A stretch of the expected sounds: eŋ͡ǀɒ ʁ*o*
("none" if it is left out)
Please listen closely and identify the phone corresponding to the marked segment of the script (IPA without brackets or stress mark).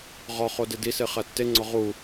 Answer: u